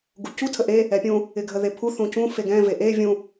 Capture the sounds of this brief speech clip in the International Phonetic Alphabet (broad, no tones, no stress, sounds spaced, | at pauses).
ɡ u c u tʰ ə ʔ e | ɛ pʲ ũ | ɪ ɡʱ ə ð e pʰ u θ ũ c ũ f e ɡ ɛ̃ v e ʔ e vʲ ũ